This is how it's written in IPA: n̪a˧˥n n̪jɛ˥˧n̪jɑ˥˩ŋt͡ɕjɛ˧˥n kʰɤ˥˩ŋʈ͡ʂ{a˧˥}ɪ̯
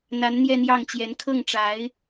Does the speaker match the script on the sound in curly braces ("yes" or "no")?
yes